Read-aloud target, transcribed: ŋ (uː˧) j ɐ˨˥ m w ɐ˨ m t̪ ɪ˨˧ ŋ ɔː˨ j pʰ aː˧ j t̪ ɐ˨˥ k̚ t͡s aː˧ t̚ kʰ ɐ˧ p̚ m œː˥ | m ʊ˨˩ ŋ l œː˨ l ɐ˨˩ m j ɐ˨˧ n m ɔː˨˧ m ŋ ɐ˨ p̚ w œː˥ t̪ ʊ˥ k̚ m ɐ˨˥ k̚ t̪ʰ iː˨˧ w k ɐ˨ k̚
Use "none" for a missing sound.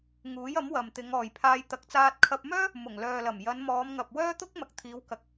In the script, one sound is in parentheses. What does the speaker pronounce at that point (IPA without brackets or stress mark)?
uː˨˥